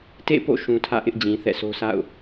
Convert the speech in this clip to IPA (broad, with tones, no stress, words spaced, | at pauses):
tḛ˦˨po̰˦˨ ʃũ˨tʰä̰˦˨ʔɪ˦ʔ d͡ʑĩ˨θɛ̰˦˨sʰo˦ sa̰˦˨ʊ̯